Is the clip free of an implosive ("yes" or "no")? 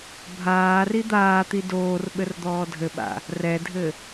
no